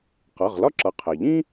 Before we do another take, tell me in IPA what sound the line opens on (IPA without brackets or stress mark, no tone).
q